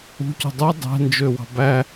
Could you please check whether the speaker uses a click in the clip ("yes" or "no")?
no